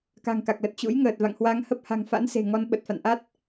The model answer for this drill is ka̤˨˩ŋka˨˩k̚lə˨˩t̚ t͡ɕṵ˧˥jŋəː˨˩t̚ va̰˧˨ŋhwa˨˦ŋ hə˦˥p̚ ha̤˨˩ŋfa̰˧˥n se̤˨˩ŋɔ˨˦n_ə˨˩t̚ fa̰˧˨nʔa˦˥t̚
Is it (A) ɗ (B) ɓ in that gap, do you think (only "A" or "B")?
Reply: B